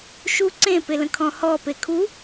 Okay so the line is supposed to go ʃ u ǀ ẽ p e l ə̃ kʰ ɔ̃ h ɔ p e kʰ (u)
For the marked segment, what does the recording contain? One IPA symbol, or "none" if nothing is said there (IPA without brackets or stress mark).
u